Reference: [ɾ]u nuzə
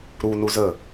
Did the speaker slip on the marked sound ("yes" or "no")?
no